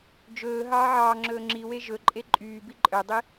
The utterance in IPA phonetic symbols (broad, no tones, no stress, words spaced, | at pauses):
d͡ʒɵː ɦɑːʕɑːŋ͡ǁɵː ŋ͡ǁiwe ʒɵǃʼe ǃʼyːbi ǃʼœdˤi